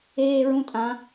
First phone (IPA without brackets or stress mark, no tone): eː